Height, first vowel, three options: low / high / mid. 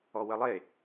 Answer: mid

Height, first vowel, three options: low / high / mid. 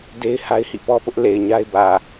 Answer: mid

